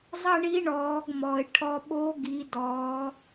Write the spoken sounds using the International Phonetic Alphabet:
zˤ ɐ˥ ɳ i˧˥ ɳ ɔː˩˧ ɡ m ɔ˩ ɪ̯ ʈʰ ɔ˧ ɓ oː˧˥ ɡ i˩˧ d ɔː˩˧

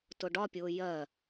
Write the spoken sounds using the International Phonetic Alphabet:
t ʊ ɖ ɒ pʲ ʊː j ɜ

